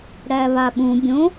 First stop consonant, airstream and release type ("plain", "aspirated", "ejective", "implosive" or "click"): implosive